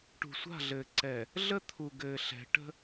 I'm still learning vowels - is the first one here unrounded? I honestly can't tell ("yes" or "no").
no